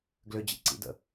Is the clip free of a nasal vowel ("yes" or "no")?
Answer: yes